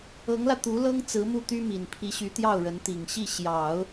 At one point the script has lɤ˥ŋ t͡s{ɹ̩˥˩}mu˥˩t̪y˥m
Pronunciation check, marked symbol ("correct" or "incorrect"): incorrect